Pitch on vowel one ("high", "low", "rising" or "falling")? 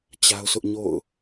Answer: high